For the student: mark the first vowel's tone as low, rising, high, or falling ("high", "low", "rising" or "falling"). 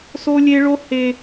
high